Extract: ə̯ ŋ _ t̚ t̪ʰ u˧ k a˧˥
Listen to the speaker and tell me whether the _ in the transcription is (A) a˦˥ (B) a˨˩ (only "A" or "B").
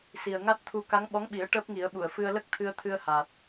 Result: A